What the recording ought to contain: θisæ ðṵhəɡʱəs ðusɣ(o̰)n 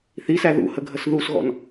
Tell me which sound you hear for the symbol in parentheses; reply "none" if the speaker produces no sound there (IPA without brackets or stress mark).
ɔ̰